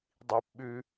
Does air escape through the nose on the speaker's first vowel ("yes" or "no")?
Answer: no